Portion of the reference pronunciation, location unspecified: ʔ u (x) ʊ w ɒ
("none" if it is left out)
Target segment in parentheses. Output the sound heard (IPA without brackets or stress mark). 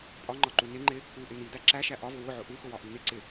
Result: x